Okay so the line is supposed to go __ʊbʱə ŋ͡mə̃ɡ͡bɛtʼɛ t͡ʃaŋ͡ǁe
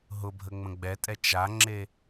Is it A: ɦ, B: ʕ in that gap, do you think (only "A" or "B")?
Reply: A